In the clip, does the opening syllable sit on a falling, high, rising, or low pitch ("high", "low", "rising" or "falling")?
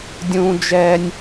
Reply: high